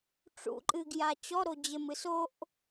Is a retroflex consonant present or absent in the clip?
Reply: present